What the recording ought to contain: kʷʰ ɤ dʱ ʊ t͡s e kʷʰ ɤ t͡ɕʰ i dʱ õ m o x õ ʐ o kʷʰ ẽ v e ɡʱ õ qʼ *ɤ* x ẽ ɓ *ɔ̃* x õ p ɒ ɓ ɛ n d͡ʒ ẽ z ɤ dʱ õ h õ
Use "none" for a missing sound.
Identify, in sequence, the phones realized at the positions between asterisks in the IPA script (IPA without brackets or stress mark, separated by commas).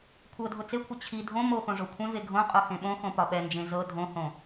o, õ